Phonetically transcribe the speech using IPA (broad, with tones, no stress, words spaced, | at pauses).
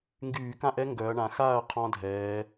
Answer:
ŋɡyː˧˩˧kã˥˨ʔɛ˦˥ ŋɡœ˩˧ɐ̯ɳã˩˧ xa˥˨ɐ̯ qʰɔ̃˦˥dʱɛː˩˧